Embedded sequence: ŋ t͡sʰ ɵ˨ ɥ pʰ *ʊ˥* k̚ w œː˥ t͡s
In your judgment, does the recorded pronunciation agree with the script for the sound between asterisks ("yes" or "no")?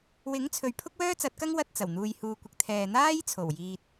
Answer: yes